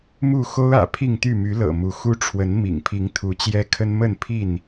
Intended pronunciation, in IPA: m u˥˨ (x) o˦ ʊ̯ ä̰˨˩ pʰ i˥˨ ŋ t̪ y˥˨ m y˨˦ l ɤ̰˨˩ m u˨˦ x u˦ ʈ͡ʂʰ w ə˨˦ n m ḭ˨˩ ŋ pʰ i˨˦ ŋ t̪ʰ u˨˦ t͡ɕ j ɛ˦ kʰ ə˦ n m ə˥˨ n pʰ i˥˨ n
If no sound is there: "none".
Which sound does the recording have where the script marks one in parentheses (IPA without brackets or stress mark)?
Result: x